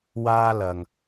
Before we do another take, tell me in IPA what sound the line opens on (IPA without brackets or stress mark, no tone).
w